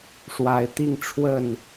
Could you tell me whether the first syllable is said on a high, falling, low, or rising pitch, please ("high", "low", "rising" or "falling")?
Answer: rising